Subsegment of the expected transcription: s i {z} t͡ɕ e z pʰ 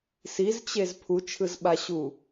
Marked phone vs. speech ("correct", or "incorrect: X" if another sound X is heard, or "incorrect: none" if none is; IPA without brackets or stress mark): correct